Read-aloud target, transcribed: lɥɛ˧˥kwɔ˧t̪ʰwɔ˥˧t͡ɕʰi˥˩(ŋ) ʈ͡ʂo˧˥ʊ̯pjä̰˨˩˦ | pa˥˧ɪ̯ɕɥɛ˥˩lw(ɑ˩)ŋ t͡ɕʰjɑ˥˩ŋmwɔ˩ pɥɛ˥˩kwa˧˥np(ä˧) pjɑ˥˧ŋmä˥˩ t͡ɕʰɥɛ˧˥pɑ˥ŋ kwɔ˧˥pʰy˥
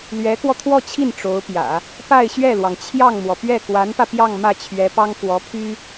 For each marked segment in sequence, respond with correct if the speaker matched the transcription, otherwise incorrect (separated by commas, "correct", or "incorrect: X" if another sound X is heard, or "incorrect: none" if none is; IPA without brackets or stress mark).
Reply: incorrect: n, correct, correct